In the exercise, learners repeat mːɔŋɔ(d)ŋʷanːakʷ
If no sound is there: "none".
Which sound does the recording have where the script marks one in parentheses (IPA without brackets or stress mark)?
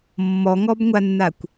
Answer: b